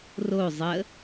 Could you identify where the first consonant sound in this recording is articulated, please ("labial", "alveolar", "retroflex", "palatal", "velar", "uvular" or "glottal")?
alveolar